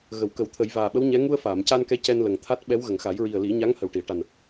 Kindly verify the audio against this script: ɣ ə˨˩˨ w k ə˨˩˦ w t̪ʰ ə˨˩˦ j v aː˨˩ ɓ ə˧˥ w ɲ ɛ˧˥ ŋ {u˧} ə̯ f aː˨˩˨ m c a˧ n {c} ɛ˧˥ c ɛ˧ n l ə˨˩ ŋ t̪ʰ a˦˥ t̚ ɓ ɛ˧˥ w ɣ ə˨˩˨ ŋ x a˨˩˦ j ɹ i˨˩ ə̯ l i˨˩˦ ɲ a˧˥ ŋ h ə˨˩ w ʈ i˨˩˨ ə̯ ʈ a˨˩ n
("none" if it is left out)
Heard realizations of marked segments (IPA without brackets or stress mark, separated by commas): u˧, k